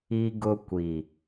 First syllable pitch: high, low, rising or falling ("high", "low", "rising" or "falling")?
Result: high